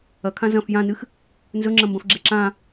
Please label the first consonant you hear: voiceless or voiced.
voiceless